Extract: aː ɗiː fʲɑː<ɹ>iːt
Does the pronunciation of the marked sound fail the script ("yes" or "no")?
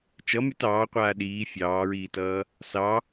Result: no